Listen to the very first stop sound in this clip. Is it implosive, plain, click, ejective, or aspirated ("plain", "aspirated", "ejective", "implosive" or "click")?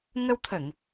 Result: aspirated